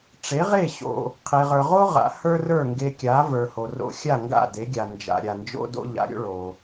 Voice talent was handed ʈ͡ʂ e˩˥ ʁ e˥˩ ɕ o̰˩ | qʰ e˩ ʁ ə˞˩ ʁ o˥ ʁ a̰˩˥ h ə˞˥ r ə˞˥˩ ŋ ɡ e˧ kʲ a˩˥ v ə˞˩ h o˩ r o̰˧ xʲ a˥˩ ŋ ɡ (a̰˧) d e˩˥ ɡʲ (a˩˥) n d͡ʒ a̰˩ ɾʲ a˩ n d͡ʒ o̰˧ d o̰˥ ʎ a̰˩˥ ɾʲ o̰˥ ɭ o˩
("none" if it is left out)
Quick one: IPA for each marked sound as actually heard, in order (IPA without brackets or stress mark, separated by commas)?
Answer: a̰˥˩, a˩